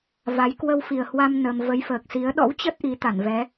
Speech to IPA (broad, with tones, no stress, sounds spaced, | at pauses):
v a˨˦ j k w ə˧ w f i˨˩ ə̯ h w a˧ m n ə˧ m v ə˨˦ j f əː˨˩ k̚ s i˨˦ ə̯ ɗ ɔ̰˧˥ w t͡ɕ ə˦˥ t̚ ʔ i˨˦ t̪ a˧˩ n v ɛ˨˦